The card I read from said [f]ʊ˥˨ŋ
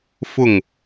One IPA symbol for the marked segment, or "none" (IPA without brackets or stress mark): f